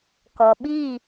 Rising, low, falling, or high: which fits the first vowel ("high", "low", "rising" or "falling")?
low